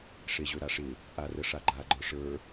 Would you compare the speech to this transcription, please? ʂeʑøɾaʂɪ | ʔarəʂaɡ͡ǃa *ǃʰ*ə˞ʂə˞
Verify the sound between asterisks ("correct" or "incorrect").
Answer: incorrect